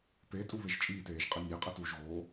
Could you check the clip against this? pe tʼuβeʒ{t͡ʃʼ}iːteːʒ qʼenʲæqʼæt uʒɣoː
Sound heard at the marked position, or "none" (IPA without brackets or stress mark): t͡ʃʼ